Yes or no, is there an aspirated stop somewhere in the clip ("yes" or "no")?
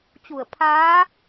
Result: yes